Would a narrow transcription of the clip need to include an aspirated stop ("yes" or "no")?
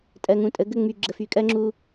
no